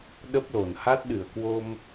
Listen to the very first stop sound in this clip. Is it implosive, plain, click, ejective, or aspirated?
implosive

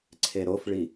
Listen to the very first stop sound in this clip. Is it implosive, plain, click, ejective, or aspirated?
click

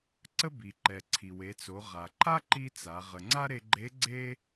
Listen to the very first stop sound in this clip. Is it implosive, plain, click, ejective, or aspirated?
click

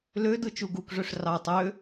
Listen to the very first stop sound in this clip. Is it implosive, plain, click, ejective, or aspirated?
plain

